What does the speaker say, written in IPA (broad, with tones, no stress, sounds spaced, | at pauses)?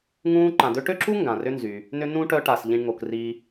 ŋ ũː˦ ǃ ã˨ d̪ ø˦ ʈ ø˥ ǁ u˥ ŋ ɡ ã˩ r ʏ˦ n z y˩ | n ʏ˥ n ũ˥ ʈ œ˦ ʈ a˨ s ʎ ĩ˨ ɳ ŋ o˩ k r i˨